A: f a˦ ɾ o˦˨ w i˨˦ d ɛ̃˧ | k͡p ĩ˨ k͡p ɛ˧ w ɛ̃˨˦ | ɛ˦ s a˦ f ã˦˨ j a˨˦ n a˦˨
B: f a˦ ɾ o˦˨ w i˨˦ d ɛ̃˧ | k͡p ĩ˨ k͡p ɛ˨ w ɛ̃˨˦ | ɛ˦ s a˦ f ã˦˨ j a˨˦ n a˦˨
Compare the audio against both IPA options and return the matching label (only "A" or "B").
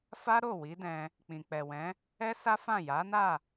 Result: B